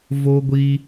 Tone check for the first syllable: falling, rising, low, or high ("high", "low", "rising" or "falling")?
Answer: high